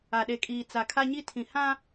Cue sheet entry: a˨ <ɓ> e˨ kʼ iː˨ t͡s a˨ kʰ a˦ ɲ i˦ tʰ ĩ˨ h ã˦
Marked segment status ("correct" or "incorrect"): incorrect